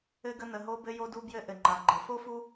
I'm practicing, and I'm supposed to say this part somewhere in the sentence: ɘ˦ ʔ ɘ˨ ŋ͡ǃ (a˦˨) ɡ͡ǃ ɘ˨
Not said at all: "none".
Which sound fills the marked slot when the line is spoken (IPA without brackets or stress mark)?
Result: a˨